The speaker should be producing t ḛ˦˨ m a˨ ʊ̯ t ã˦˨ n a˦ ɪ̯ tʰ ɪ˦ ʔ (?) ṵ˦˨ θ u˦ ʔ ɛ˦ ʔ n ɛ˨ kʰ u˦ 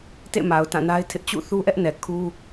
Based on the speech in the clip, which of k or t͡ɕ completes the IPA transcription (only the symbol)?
t͡ɕ